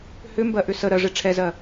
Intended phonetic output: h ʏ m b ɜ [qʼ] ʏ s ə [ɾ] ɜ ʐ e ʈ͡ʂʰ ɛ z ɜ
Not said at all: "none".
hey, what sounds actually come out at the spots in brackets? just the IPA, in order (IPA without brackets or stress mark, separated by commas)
ʔ, ɾ